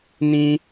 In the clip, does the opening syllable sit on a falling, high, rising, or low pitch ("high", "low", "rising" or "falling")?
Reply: high